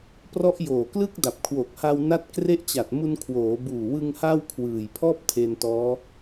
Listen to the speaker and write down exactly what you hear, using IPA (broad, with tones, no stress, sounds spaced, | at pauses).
p r ɔ˦˥ ʔ j oː˨˩ k l ɯ˥˩ k̚ d a˨˩ p̚ kʰ w o˨˩ k̚ h a˧ w n a˦˥ t̚ k r e˦˥ ʔ t͡ɕ a˨˩ t̚ m u˧ n kʰ w oː˩˦ b uː˨˩ w ɯ˧ ŋ h a˥˩ w kʰ w ɯː˨˩ j pʰ ɔː˥˩ p̚ tʰ e˧ n t ɔː˦˥